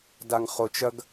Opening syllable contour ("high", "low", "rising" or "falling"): low